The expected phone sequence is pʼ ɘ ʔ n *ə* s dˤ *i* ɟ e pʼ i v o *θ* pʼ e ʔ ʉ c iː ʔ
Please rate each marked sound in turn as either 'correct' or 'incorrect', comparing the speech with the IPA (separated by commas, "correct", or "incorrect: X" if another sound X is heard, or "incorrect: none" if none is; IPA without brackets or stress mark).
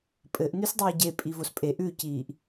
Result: incorrect: ʉ, incorrect: iː, incorrect: s